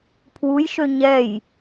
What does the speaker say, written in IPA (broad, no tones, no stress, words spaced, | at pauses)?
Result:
pʰwujʃø ɲɛj